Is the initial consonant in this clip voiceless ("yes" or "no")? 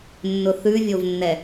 no